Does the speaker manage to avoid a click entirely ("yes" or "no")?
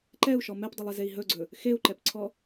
no